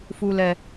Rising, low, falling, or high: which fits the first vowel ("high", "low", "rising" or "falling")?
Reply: low